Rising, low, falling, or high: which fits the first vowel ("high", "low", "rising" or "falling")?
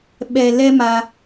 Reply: low